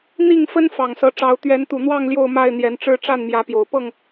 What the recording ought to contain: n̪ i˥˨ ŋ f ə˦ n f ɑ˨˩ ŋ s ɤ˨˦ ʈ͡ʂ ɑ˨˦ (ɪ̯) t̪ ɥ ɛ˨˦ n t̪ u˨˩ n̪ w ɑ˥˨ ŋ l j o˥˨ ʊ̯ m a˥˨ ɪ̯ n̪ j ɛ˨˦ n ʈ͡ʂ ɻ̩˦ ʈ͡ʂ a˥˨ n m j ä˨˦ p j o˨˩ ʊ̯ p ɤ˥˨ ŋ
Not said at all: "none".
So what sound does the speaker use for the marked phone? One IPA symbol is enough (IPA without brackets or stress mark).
ʊ̯